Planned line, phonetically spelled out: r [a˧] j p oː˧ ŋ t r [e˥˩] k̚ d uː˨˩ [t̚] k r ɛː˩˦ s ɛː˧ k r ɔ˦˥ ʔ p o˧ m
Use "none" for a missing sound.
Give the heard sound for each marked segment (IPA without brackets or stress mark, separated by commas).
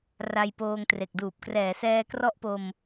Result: a˧, e˨˩, p̚